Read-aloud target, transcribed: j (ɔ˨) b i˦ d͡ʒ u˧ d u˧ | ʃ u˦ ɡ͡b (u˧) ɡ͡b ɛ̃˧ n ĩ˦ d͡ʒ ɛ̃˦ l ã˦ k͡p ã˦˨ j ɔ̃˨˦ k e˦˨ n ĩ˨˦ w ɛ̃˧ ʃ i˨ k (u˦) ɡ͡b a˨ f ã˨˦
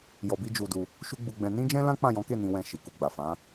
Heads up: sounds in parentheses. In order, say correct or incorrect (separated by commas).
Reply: incorrect, correct, incorrect